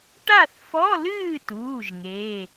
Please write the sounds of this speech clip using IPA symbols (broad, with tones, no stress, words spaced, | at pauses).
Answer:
ʈa˥˨θfɔ˧˥˧lɨː˥˨tuː˩˧˩ʒ ŋeː˩˧˩